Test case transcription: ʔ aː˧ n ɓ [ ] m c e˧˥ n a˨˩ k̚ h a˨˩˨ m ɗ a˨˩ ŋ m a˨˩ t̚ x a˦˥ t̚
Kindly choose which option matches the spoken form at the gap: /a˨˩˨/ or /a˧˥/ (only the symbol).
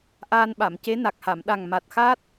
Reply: a˨˩˨